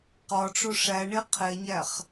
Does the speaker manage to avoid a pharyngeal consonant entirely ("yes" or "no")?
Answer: yes